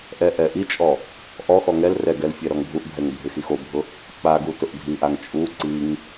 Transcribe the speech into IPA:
ʔɛʔɛ ʔit͡ʃʼɔ | ʔɔxɔ ŋɛl rɛɡɛl fʲɛɾɔŋbʱuʔbʱɛŋ bʱɪxixobʱʊ | k͡paɡu tʊʔdʱiʔaŋ t͡ʃʼu ǀiŋ

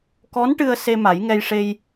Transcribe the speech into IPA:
kɔ˧˥nʈɨ˧ə̯ se˧ ma˨˩˦jŋɛ˧jʂe˧j

